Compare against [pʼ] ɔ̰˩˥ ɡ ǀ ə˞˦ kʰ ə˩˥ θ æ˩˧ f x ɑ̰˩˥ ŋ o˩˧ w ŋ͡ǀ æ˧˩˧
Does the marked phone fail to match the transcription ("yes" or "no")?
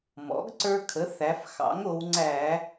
yes